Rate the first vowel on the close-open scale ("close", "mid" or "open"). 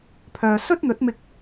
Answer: mid